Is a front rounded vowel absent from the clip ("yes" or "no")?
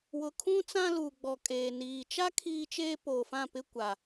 yes